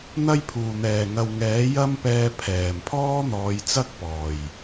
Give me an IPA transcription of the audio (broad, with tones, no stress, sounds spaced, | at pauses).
n̪ ɐ˥ j pʰ uː˨˩ n̪ ɛː˨˩ ŋ ɐ˨ w ŋ ɛː˨˥ j ɐ˥ m p ɛː˧ pʰ ɛː˨˩ m pʰ ɔː˥ n̪ ɔː˨˧ j t͡s ɐ˥ k̚ p ɔː˨˩ j